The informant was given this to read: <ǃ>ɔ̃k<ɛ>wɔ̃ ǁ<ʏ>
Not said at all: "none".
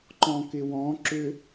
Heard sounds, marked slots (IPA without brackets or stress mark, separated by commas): ǃ, ɪ, ʏ